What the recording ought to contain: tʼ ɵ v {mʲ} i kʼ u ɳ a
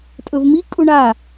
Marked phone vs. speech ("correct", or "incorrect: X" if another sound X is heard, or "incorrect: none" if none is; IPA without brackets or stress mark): incorrect: m